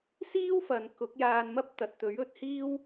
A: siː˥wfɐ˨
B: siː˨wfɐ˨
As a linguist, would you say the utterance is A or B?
A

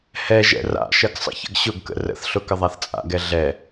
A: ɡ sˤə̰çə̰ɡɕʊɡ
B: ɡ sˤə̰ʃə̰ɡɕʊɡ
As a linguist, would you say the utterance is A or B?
A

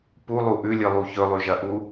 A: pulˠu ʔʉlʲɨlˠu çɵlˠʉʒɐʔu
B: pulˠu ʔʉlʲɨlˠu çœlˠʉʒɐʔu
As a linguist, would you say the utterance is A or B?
A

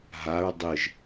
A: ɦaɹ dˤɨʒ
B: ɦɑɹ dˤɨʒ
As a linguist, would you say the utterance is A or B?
A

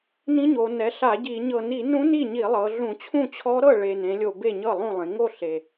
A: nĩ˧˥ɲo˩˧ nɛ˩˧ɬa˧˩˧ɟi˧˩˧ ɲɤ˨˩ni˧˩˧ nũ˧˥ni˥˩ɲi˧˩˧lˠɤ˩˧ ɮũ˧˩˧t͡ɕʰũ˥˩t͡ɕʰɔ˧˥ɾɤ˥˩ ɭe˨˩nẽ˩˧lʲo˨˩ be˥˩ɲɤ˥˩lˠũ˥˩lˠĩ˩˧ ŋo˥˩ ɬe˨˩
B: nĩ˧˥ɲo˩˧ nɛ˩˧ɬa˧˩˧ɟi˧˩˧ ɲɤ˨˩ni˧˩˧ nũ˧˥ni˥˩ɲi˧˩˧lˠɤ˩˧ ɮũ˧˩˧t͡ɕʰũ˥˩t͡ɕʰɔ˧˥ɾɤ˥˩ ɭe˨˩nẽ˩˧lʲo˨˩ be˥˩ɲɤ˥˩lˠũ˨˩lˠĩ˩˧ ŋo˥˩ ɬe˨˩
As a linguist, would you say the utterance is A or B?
A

